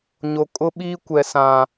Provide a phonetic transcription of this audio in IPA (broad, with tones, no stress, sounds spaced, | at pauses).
ɲ o˨ kʼ ʊ˦ ɓ iː˦ kʷ ɛ˨ s ã˨